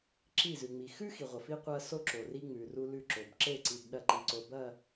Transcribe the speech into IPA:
ǁi˦˨zʉ˨ŋ͡mi˨ xʉ˦ xi˨ʁʷɐ˨fi˦ qʷɐ˦so˦ǁo˨ ri˦ŋ͡mʉ˨ru˦ lʉ˦˨ǁo˨b ǁe˦˨ǀi˨b ɗɐ˦ǃi˨ǀo˨bɐ˦˨

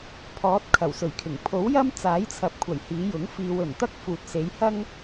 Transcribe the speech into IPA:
pʰɔː˨˥t̚ kʰɐ˨˩wsɵ˨˩ɥkʰɪ˨˩ŋ pʰo˨˥wjɐ˥m t͡saː˨˥jt͡sʰɐ˨p̚kʷʰɐ˨˩j hiː˨˧jʊ˨˥ŋ fiː˧w ɵ˨˩nt̪ɐ˥k̚ fuː˨t̚se˨˧jhɐ˥ŋ

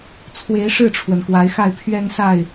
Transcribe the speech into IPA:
t͡sʰwe˨˦ɪ̯ ʂɻ̩˥˨ʈ͡ʂʰwə˩n kwa˨˦ɪ̯xa˥˨ɪ̯pʰɥɛ˦nsa˥˨ɪ̯

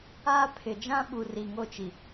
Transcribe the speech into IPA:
aː˦ pʰɪ˨d͡ʒã˦ɓu˨ ri˨ŋo˦˨t͡ʃi˨

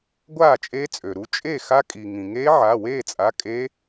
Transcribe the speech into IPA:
ɡʷaː˥˨t͡ʃʼe˦˥t͡sʼø˩ɾu˩˧˩ t͡ʃʼe˥˨xa˦˥kʼi˩ ŋĩ˩ŋe˦˥ ʕa˩˧˩weː˥˨t͡sʼa˩˧˩ kʼe˦˥

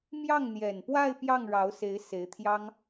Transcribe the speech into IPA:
mjɑ˥˩ŋn̪jɛ˨˩npwa˥˧ɪ̯ pjɑ˥˩ŋɻɑ˧˥ʊ̯se˧˥ɪ̯ se˧˥ɪ̯t̪ʰjɑ˥ŋ

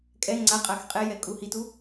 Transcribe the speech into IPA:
kʼɛ ŋ͡ǀaqʼax qʼɛjɛ kʼuhitu

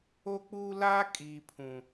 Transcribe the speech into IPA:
o˦k͡puː˦ la˦kʼi˨ pʰũ˨

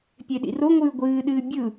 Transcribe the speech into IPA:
pʲeɗḭroŋʷɨː ɡʷɨːɗɨː bʲɯ

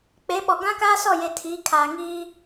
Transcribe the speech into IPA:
k͡pe˨˦ɓɔ˨ ɡã˦kaː˦sɔ˦˨je˨ tʰiː˨˦kʰaː˨ŋiː˦

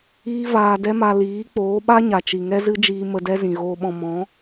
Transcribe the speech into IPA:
iː˦vaː˧ dɛ˦ma˧ liː˨˦k͡poː˨˦ɓa˦ ɲa˨t͡ʃi˨ŋɛ˦zɨ˦ d͡ʒiː˧mə˧dɛ˦ zĩ˨ɣoː˧ɓɔ̃˧ mɔ̃˨˦

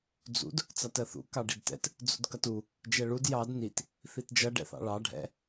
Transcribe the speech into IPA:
d͡zṵd | t͡sɑtɜθṵ kɑɖidtɛ̰t | d͡zṵdkʌtu | d͡ʒɛɭud jɑd nit | θitd͡ʒʌ ɖɛ̰θɑ̰ɭɑ ɖʱɛ̰

